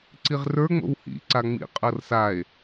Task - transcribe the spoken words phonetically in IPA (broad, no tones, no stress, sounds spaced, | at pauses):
ǀ i ʁ r ə˞ ŋ͡m o̰ w h ḭ ǀ a ŋ͡m ḭ qʼ ɤ r s a e̯